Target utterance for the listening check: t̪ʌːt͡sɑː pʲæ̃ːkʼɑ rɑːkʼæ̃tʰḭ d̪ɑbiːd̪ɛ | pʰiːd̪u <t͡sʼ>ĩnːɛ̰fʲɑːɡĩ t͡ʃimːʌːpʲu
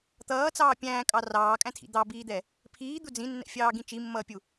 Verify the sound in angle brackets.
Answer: incorrect: d͡z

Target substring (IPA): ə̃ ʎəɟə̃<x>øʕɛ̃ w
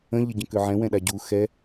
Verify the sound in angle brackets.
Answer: incorrect: k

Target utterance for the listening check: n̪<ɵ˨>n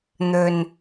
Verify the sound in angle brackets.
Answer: correct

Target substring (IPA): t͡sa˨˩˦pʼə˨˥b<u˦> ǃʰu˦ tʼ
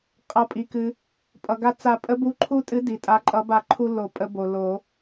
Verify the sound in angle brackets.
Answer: incorrect: u˨˥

